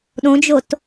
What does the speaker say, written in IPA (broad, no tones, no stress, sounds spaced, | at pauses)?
ɗ õ d͡ʒ o t